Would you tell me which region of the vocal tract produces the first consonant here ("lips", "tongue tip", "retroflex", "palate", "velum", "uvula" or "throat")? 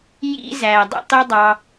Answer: palate